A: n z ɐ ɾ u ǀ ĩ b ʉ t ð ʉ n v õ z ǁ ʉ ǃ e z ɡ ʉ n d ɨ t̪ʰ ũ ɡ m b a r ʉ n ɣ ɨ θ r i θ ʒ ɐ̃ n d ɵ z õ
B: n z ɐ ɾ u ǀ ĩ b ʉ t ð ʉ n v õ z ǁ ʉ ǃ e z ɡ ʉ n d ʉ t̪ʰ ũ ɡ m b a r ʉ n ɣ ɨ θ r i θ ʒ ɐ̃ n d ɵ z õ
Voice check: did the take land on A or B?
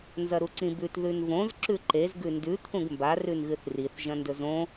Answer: B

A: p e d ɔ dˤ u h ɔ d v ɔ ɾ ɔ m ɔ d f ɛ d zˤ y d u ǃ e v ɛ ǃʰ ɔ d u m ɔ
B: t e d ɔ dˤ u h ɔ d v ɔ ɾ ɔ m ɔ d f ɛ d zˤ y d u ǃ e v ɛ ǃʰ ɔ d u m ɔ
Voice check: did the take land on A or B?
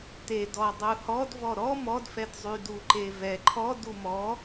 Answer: B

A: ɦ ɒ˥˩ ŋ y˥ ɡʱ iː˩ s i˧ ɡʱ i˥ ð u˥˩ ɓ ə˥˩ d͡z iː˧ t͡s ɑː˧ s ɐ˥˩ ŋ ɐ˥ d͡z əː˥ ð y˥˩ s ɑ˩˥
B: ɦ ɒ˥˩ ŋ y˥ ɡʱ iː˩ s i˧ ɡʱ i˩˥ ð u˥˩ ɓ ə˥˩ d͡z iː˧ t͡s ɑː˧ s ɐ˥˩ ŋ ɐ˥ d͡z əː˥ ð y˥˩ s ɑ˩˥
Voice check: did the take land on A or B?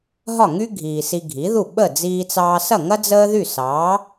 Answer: B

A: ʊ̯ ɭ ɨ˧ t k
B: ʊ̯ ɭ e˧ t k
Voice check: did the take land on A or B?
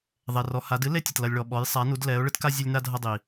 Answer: A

